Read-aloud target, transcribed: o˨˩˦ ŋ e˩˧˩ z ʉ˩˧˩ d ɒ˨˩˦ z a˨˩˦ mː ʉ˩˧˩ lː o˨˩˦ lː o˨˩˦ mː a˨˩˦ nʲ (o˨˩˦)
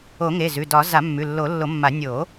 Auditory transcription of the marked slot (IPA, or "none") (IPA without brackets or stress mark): o˨˩˦